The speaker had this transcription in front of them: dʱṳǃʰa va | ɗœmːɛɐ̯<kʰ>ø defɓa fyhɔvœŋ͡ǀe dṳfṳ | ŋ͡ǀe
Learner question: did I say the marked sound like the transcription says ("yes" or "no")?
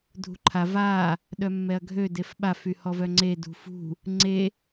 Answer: no